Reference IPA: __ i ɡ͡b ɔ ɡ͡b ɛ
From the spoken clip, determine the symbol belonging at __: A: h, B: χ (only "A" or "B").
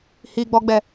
A